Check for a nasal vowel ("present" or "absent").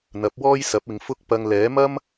absent